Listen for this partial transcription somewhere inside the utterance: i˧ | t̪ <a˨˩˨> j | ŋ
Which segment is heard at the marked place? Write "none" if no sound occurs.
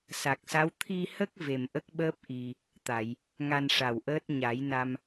a˨˩˨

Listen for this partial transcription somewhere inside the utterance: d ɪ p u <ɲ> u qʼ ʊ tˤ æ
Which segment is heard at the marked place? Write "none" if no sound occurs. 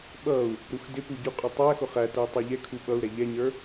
ɟ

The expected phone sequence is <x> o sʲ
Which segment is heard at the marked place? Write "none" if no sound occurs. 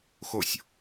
x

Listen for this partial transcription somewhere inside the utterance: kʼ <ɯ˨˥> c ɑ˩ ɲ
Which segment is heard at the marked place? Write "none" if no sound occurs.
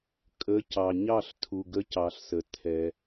ə˨˥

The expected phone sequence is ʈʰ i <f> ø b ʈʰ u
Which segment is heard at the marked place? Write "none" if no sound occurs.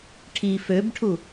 f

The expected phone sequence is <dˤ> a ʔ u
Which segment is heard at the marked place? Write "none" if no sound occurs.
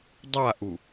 dˤ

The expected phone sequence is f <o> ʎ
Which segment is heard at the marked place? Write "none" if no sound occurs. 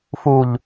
u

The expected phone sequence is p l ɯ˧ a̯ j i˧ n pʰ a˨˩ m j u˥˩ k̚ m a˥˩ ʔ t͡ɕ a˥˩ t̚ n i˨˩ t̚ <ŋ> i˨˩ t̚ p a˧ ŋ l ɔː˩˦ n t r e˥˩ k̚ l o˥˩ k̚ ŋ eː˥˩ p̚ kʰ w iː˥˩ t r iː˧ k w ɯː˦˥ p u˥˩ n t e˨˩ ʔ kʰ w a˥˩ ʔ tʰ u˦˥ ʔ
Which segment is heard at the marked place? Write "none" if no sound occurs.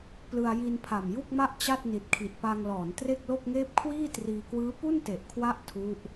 kʰ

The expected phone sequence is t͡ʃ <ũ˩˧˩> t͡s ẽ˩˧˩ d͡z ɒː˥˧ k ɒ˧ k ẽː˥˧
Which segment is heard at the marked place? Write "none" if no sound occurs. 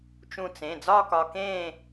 ũ˧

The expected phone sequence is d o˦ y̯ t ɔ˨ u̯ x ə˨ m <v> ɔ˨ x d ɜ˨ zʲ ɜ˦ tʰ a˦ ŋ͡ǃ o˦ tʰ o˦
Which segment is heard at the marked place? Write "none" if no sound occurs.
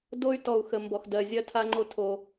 b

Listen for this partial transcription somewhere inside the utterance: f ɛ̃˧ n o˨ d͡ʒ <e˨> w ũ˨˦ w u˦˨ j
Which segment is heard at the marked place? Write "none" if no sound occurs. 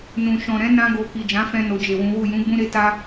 e˨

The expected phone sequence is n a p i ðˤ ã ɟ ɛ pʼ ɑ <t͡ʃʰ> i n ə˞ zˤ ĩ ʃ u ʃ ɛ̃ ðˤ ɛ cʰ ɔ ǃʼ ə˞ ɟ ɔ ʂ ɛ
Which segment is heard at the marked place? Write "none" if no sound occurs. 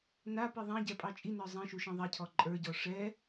t͡ʃʼ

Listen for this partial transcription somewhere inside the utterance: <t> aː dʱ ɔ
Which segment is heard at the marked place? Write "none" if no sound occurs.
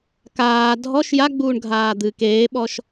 k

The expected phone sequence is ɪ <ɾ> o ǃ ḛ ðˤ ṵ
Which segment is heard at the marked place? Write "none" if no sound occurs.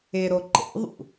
ɾ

